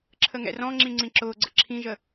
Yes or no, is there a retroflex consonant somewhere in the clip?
no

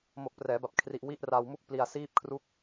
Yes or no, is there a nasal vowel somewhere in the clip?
no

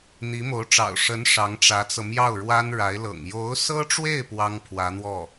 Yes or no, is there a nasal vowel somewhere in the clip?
no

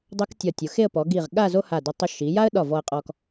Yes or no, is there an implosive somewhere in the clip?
yes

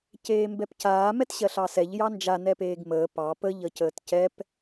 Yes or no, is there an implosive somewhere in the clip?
no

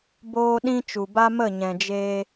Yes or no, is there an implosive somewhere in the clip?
yes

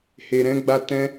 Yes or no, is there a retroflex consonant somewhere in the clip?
no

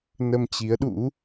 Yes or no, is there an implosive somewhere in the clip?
yes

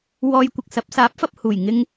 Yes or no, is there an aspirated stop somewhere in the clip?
no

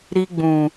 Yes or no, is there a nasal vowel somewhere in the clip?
yes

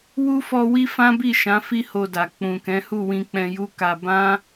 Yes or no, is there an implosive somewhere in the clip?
no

